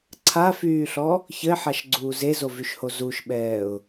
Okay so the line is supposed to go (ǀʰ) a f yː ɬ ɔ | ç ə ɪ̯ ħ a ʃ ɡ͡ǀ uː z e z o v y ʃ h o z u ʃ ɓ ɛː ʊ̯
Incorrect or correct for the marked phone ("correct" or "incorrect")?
correct